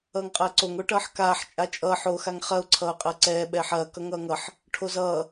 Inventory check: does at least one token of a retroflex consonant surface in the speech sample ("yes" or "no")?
yes